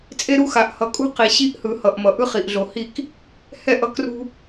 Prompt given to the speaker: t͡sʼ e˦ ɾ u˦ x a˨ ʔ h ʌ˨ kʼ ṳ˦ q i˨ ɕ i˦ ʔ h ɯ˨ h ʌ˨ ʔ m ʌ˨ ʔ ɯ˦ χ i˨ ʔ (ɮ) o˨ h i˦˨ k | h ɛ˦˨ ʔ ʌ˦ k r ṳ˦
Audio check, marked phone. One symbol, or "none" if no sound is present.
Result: ɮ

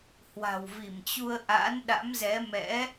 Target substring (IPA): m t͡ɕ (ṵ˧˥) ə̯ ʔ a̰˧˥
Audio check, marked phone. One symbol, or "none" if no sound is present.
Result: u˧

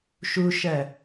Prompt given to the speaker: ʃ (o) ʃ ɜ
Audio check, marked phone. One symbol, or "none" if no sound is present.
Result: u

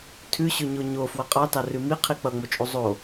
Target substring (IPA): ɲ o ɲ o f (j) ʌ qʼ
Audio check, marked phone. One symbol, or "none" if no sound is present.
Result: w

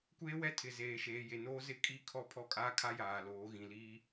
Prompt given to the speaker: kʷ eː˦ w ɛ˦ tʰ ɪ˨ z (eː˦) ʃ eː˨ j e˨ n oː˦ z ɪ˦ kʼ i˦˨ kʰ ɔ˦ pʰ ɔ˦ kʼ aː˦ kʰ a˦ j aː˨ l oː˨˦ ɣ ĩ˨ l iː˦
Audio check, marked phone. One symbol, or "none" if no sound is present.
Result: eː˨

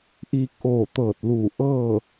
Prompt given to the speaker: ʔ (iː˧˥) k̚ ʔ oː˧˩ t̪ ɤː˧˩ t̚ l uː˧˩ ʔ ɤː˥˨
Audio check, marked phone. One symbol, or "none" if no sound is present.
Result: iː˧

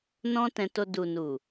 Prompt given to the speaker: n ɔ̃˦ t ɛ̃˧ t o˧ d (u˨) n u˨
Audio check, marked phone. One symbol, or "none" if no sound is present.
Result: u˨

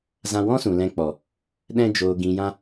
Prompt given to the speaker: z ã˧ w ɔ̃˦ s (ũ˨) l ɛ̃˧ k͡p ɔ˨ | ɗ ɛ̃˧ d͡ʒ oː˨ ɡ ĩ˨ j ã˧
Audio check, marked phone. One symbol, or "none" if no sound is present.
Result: ũ˨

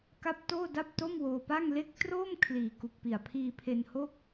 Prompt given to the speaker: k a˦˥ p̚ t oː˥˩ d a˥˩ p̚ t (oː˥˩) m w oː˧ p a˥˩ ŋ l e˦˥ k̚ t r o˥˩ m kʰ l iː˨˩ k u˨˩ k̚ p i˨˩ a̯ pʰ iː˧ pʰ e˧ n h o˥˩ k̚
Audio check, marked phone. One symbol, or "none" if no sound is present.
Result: o˥˩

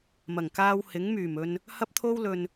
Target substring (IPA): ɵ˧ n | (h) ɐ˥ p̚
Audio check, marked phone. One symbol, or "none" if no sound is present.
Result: h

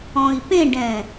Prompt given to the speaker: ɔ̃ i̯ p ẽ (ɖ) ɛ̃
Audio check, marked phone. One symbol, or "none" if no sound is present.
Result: ɖ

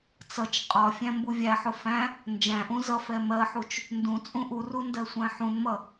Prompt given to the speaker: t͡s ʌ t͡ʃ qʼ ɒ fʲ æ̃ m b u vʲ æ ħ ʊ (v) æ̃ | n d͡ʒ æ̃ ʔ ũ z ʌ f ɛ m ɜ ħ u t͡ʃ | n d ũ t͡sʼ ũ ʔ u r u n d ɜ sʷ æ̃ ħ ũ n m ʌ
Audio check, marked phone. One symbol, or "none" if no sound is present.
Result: f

